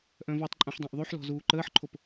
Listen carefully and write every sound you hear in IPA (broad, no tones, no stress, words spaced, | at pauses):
ʔœ̃vɔtˤǃʼũħ dˤãʔðˤyħlɔ̤ zuːǃəːħǃʰop